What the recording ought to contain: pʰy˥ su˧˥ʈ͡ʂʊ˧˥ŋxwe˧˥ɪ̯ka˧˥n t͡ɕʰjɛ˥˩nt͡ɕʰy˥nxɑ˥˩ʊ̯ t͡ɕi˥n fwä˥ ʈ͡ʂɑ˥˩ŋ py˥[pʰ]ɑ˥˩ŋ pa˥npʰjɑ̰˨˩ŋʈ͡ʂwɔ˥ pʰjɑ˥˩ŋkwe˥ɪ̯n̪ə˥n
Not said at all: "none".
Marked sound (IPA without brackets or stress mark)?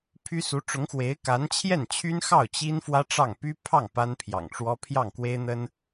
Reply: pʰ